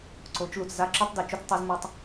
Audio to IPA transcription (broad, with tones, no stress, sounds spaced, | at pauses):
ǀ o˩˥ t͡ʃ l u˩ t͡s z a˥ ǁ o˥ tˤ d e˩ t͡ʃ o˥ t͡s tˤ ʉ˩˥ z m o˧ tˤ